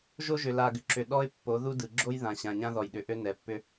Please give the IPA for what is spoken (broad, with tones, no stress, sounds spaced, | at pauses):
ʒ o˦ ʒ ʏ˨ l a˨ ɡ ʏ˨ ǁ ʏ˨ ɗ ɔ˦ ɪ̯ pː o˨˦ ð u˦ d ɯ˨ ɡ͡ǁ o˦ j ð ã˨ ɕ ã˨ ɲ ã˦ ð ɔ˨ j ɗ ʏ˨ ʔ ø˦ n ɛ˨ pː ʏ˦